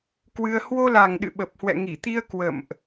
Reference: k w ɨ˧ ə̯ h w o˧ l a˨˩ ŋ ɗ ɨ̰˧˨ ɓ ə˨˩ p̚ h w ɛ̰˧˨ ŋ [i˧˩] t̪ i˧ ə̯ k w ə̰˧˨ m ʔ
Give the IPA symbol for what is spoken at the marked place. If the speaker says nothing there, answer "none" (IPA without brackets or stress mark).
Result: i˧˩